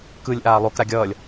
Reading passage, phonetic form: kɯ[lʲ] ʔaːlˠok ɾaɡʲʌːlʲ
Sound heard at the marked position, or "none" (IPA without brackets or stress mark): lʲ